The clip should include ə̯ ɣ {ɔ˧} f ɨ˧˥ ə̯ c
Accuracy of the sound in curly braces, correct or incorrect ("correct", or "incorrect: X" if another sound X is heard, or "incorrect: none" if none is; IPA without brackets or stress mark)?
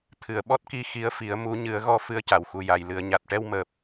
correct